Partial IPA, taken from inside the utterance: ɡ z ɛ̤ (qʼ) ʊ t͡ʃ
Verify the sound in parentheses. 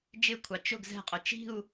correct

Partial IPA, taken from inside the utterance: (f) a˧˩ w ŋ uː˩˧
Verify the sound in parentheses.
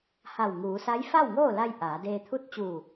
incorrect: h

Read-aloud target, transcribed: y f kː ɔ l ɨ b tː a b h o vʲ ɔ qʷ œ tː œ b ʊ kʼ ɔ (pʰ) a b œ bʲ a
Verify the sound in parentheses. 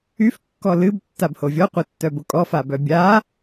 incorrect: f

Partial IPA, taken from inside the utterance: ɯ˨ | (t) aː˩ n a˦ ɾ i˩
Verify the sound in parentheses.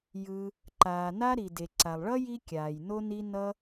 incorrect: ǃ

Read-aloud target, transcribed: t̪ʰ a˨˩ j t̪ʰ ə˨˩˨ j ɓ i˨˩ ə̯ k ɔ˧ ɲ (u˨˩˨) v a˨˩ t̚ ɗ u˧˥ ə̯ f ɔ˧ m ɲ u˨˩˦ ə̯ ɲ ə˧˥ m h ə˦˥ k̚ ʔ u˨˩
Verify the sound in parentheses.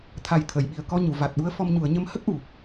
correct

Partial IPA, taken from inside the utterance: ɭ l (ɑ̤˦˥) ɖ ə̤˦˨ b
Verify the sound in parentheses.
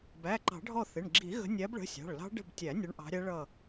correct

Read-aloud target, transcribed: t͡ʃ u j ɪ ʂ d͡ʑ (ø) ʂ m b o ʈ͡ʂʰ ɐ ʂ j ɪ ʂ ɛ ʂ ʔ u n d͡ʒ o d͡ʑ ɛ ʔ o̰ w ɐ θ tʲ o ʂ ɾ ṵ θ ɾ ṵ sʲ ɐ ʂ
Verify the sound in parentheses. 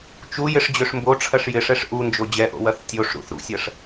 correct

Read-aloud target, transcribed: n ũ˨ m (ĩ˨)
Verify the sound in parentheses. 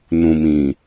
correct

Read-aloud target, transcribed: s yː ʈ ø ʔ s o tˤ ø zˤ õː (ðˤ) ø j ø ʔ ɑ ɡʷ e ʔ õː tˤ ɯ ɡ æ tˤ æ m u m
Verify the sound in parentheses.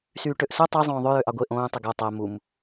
correct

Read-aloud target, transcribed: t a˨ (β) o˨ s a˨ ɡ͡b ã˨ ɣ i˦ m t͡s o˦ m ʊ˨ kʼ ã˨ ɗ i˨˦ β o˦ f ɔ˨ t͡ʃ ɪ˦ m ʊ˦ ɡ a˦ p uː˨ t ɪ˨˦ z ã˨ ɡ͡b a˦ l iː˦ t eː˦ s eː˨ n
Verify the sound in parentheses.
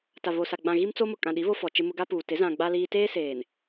correct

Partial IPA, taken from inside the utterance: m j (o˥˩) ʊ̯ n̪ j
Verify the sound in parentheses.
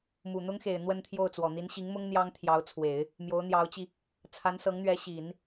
incorrect: o˧˥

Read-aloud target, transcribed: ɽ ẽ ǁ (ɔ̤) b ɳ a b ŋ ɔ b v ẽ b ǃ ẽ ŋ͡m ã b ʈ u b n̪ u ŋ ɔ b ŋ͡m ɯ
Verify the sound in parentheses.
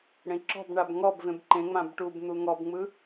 correct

